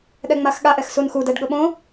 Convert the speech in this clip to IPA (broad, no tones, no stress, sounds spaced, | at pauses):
ɗ ɛ ŋ͡m a x ɠ a ʔ ɛ x s u n x u d ɛ ɖ ɠ ʊ ɓ õ